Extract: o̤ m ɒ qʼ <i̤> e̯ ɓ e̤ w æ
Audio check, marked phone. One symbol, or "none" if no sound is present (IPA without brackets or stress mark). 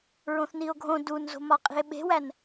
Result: i̤